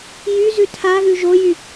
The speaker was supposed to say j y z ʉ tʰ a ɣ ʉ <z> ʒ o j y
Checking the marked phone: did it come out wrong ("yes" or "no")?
yes